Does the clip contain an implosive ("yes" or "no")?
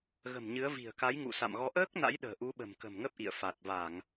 yes